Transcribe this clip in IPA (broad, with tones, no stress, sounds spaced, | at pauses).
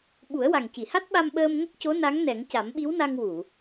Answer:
ɓ u˨˩˦ ə̯ w a˨˩ ŋ c i˨˩˨ h a˦˥ t̚ ɓ a˧ m ɓ əː˧ m ŋ ə˦˥ k̚ c o˧˥ n a˧˥ ŋ n ɛ˨˩˦ ŋ c a˨˩˦ m ɓ i˧˥ w n a˧ ŋ w u˨˩˨